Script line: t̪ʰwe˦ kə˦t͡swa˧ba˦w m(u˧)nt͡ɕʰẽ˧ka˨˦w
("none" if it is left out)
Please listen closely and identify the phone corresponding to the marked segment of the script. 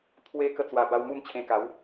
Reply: u˥˧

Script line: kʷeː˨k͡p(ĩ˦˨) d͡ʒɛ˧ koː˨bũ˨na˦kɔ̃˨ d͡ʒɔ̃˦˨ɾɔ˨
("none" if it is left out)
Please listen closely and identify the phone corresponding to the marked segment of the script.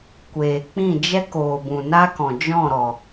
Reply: ĩ˦˨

